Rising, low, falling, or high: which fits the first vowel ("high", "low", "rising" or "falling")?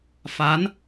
rising